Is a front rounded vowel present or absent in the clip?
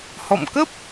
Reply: absent